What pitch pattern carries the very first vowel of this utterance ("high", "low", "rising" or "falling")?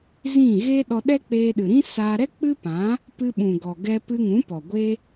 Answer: falling